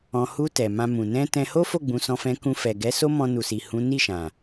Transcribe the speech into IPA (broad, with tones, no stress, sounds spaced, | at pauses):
ɔ̃˨ h u˧ t ɛ˨ m ã˧ m ũ˨ n ɛ̃˧ t ɛ̃˧ h o˦ f o˦˨ ɡ͡b ũ˨˦ s ɔ̃˧ f ɛ̃˧ k ũ˧ f ɛ˨ ɡ ɛ˨˦ s o˦ m ɔ̃˧ n u˨ s i˨ h ũ˨˦ n i˦˨ ʃ ã˨